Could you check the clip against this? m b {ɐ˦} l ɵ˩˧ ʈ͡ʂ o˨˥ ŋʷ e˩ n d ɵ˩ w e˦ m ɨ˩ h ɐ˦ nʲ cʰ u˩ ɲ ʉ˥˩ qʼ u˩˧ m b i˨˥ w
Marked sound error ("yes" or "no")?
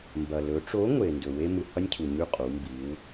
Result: yes